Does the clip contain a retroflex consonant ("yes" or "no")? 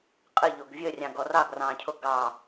no